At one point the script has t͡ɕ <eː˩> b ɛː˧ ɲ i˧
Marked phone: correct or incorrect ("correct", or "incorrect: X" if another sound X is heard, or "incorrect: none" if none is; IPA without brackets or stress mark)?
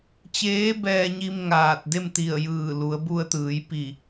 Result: incorrect: eː˧˥